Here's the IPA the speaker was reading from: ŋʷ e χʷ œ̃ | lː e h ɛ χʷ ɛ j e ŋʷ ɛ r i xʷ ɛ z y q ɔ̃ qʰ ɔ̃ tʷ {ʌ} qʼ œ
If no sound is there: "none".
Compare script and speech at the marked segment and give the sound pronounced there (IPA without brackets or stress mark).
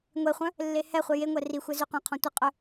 ə